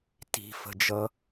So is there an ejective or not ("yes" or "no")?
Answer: no